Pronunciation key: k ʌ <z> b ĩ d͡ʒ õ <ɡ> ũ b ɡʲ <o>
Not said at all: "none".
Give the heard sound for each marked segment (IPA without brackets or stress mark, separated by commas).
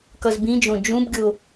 z, d͡ʒ, o